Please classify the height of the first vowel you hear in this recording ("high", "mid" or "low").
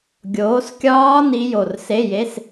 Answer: mid